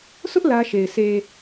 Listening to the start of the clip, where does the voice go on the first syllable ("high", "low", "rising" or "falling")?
high